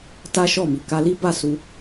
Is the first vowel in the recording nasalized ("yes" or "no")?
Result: no